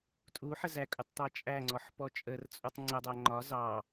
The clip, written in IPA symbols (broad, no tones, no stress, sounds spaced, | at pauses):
tʼ u ħ ə z æ kʼ ʊ tˤ t̪ ɑ t͡ʃʼ æ ŋ͡ǀ ɔ ħ p ɔ t͡ʃʼ ə r t͡sʼ u tˤ ŋ͡ǀ ə dˤ æ ŋ͡ǃ ɒ z ɑ